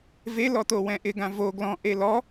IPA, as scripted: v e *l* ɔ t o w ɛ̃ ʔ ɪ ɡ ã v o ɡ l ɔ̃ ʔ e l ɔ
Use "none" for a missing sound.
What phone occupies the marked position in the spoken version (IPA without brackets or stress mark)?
l